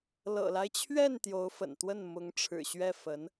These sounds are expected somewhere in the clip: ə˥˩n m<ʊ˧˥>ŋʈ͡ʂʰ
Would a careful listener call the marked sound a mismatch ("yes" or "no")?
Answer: no